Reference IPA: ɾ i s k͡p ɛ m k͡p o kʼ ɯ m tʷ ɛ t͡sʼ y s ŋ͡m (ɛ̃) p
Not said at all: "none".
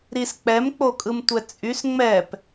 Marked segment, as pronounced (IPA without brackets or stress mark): ɛ